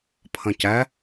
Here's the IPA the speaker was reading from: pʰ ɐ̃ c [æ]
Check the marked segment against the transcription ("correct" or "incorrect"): correct